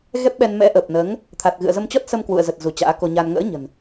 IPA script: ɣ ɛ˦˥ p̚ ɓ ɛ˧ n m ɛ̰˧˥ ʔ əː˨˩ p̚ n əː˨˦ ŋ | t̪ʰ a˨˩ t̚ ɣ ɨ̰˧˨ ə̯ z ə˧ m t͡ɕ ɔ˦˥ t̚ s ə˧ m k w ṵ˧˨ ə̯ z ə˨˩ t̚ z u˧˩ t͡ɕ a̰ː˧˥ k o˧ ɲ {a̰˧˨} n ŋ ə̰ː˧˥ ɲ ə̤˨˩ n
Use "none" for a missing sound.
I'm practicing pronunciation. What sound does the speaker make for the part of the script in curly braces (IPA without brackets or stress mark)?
a˧